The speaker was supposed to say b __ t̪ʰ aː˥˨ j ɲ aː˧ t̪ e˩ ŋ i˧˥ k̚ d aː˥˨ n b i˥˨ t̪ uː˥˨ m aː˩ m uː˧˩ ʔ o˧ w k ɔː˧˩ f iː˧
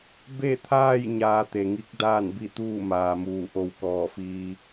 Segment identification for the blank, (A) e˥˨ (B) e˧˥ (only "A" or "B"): A